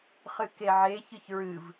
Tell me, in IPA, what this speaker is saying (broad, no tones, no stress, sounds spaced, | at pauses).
χ ɨ k e ʕ e ç ɨ ç ɹ ɨ v